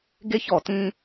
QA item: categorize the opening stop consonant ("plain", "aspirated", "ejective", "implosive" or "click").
plain